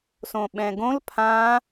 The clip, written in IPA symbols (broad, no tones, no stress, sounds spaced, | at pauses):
s õ ɓ ɛ̃ ɡ õ l pʰ ã